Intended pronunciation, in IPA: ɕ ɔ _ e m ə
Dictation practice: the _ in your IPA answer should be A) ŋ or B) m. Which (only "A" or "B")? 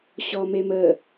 B